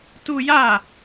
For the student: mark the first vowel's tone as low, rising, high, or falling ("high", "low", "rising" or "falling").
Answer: high